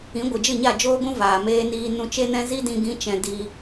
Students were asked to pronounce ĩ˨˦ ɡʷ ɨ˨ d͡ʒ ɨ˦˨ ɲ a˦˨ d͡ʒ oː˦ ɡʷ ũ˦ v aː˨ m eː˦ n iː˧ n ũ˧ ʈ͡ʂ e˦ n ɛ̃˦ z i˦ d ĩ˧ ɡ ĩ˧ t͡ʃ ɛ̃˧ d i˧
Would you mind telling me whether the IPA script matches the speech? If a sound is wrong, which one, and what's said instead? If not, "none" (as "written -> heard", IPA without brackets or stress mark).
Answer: ʈ͡ʂ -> t͡ʃ